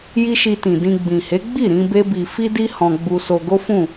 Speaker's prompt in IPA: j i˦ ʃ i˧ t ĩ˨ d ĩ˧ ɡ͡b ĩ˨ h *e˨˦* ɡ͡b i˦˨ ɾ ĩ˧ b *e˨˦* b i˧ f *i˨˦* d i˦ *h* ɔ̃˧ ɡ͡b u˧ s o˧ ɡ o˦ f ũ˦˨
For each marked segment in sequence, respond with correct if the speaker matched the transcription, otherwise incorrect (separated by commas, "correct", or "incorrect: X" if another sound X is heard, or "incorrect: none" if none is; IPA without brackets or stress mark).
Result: correct, incorrect: e˦, incorrect: i˦, correct